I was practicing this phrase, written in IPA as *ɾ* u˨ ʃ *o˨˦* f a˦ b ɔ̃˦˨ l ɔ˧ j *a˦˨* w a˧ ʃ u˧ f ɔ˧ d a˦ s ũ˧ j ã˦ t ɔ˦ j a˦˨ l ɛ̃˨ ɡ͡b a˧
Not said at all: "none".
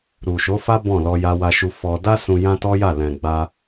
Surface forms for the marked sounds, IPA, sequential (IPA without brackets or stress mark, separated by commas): ɾ, o˨˦, a˧